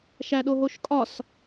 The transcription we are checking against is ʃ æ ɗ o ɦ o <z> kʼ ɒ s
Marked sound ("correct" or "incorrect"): incorrect